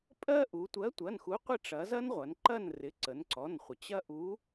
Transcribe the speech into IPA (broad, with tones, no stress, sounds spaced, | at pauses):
pʼ ɜ˦ ʔ u˩˧ tʷ ɜ˨˥ tʷ ɐ˩˧˩ n x u˨˥ qʷ ɪ˦˨ ʈ͡ʂ ɐ˩˧ z ɐ˦ n ʁʷ ɐ˩˧ n ǃ ɐ˦˨ n r ɪ˩˧˩ ǀ ə˩˧ n ǀ ɔ˩˧˩ n χʷ ə˩ t͡ɕ ɐ˦ ʔ u˨˥